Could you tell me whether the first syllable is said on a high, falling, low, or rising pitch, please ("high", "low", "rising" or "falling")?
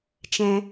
high